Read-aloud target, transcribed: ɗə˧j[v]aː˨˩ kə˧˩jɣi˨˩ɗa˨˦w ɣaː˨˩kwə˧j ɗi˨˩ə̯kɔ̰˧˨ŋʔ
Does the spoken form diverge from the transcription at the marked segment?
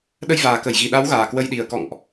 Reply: no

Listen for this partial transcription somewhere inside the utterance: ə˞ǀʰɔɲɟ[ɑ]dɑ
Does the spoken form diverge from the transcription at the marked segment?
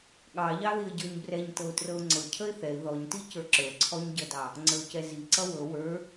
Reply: yes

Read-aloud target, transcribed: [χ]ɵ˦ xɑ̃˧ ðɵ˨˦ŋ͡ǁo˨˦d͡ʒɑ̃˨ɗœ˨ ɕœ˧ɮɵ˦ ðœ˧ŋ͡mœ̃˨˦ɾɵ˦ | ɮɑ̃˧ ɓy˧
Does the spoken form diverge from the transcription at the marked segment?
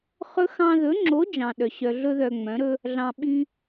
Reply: no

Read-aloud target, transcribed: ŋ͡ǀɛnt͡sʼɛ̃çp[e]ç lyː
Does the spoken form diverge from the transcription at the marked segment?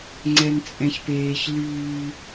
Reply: yes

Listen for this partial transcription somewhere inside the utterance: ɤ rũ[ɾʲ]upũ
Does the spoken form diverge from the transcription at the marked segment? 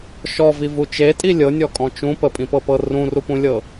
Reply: yes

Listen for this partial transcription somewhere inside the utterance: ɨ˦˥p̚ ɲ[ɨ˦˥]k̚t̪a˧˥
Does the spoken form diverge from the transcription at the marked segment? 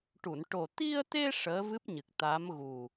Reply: yes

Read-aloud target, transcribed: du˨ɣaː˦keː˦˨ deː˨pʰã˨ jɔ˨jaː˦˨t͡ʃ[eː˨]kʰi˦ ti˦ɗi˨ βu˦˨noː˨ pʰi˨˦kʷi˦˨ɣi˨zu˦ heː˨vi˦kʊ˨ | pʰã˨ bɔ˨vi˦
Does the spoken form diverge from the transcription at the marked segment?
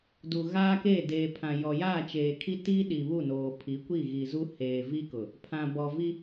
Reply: no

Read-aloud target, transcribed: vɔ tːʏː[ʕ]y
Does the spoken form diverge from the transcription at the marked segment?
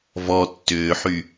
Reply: yes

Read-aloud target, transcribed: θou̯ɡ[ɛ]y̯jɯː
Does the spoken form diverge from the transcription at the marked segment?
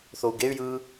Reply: yes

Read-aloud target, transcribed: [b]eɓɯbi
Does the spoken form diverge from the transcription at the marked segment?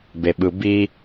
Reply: no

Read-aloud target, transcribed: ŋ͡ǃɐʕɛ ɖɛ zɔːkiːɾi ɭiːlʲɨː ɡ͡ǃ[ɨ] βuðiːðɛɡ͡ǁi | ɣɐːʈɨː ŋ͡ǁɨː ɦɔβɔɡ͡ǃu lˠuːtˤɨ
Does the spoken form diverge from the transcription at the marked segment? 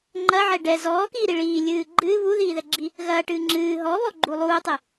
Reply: yes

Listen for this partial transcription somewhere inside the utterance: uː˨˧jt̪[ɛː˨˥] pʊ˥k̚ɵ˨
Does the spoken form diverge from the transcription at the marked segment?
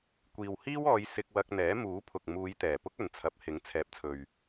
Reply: yes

